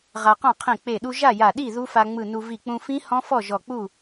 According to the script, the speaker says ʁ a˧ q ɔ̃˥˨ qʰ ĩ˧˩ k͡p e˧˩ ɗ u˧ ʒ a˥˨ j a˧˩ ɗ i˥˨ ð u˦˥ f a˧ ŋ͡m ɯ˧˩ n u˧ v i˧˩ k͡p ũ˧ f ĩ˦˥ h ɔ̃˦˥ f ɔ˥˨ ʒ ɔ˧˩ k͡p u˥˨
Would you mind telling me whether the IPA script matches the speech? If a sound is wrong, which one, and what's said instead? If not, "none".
none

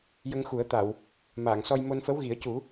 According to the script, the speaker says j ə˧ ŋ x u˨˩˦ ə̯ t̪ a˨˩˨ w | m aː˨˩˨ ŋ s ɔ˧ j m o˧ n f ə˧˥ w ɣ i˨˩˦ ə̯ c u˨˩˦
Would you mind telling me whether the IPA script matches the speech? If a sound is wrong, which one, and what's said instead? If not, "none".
none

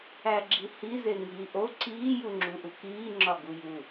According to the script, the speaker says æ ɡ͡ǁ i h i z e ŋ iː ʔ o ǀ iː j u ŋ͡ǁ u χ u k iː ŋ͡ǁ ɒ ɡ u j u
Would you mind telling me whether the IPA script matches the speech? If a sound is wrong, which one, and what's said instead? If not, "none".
χ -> ʔ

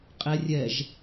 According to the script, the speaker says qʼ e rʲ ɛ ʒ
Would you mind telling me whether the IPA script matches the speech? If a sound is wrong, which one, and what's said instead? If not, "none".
e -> ɛ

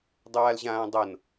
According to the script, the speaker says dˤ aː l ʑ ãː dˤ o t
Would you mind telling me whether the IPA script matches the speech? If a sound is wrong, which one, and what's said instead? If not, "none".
t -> n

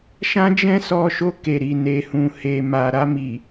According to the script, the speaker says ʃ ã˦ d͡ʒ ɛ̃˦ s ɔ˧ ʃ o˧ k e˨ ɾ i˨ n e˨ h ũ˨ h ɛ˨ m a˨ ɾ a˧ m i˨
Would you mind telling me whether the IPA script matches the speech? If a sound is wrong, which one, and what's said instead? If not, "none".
ɛ˨ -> e˨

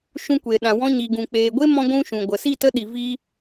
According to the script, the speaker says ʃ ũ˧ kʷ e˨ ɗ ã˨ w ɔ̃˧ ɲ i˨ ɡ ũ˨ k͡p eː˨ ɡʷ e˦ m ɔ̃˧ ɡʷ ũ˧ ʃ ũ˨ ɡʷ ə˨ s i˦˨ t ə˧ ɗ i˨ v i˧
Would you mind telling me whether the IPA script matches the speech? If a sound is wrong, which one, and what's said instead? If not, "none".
none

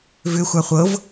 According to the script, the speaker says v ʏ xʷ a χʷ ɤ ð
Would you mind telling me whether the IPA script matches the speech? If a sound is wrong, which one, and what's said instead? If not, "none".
ð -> v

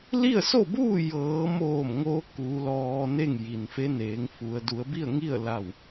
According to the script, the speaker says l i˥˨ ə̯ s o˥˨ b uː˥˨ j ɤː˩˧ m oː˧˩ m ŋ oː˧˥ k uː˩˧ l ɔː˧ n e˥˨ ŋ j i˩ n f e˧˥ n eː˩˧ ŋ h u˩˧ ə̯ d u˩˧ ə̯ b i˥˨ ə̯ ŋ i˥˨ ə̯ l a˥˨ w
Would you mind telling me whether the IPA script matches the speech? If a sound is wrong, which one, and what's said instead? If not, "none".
h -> f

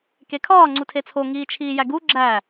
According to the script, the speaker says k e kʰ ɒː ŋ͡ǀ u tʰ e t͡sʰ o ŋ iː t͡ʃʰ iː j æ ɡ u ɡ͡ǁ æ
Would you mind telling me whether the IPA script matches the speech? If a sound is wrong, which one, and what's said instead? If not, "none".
none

